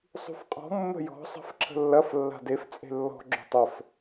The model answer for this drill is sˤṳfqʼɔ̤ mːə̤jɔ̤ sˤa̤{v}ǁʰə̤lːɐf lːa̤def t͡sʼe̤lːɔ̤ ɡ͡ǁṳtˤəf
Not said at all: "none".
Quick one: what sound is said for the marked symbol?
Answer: f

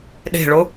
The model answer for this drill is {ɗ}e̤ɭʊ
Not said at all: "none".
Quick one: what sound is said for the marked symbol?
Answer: ɗ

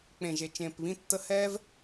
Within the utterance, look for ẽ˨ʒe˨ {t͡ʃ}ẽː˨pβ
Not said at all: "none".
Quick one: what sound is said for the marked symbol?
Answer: t͡ʃ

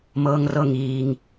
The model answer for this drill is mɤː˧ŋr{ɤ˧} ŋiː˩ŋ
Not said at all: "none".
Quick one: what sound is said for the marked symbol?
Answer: ɤ˧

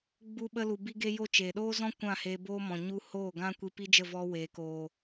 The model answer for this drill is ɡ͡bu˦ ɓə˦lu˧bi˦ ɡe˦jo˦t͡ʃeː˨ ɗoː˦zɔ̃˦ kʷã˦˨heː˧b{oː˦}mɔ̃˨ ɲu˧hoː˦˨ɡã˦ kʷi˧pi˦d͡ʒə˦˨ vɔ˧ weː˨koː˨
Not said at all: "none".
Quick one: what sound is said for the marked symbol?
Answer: oː˦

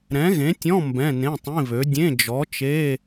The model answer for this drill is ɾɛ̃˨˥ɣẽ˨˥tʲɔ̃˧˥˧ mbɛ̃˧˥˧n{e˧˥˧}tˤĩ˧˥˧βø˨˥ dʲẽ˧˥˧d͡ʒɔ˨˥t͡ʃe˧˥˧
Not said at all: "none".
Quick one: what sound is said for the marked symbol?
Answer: ẽ˧˥˧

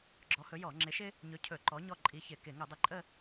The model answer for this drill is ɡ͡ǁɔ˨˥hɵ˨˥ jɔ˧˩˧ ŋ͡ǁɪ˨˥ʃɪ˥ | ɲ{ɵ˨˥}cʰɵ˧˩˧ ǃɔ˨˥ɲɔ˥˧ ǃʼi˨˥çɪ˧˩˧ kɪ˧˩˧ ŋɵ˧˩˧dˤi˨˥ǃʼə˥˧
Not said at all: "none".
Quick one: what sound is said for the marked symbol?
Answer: ɵ˨˥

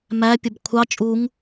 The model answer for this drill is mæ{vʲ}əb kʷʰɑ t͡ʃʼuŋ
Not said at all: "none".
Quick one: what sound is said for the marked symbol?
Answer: pʲ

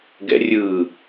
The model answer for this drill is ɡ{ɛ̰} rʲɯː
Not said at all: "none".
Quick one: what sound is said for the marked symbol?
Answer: ɛ̰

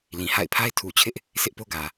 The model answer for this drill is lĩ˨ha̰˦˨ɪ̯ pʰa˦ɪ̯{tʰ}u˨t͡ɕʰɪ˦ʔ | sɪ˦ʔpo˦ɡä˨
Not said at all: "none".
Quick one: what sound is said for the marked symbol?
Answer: tʰ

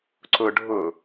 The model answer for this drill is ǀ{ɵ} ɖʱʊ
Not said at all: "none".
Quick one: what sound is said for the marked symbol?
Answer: ʊ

